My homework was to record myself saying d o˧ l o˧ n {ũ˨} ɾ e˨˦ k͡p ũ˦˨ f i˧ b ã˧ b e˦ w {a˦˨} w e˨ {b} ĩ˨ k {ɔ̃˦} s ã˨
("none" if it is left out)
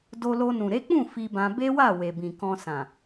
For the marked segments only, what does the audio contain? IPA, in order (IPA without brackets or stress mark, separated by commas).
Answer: ũ˨, a˦˨, b, ɔ̃˧